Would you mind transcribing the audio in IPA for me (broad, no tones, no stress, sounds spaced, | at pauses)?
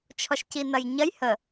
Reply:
t͡ʃʰ ɔ ʃ c i n ɐ j ɲ ɐ j h ə